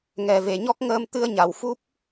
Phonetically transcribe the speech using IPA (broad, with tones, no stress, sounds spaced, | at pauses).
ŋ ɛ˨˩ v e˨˩˨ ɲ ɔ˦˥ k̚ ŋ əː˧ m t̪ ɨ˧ ə̯ ɲ a˨˩˨ w f u˦˥ p̚